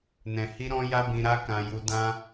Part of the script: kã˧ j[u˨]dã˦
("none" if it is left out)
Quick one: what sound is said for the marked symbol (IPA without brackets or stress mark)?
u˧